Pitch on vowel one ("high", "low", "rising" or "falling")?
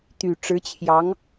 low